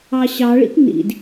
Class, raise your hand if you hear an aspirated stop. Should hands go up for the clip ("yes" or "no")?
no